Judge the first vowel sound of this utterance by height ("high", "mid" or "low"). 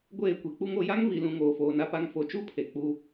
mid